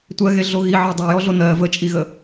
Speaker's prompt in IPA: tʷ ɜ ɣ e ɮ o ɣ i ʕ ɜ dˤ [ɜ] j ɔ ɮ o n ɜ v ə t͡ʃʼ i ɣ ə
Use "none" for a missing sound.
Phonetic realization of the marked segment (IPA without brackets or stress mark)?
ɜ